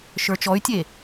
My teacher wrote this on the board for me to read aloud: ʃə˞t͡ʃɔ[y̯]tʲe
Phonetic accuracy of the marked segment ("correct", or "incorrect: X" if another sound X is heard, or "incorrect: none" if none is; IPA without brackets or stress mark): correct